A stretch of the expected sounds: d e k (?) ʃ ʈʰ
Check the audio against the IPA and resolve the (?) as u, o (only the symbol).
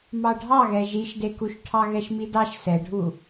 u